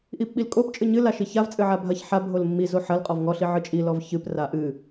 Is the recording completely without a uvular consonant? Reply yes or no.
no